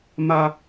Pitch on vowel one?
high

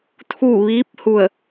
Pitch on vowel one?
falling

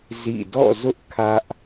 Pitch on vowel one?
falling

